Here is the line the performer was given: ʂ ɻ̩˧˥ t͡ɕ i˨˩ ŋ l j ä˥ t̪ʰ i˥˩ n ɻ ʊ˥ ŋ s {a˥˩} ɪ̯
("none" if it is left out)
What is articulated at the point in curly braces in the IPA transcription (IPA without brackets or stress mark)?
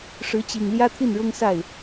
a˥˩